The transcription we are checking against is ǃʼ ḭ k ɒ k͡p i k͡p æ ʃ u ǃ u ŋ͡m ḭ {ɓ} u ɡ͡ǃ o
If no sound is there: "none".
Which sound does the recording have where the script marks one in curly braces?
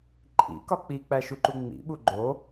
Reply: ɓ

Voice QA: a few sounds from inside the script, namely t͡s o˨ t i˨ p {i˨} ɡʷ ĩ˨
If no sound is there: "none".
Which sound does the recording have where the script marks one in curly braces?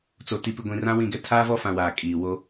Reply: i˨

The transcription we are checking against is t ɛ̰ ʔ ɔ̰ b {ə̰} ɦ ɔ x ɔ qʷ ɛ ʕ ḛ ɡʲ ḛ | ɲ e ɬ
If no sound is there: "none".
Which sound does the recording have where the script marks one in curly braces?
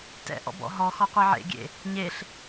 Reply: ɔ̰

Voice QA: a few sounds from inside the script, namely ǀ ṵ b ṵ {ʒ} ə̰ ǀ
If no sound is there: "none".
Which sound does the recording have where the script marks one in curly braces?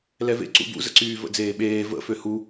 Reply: z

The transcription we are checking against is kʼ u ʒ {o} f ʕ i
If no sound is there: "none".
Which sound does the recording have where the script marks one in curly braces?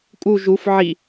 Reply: u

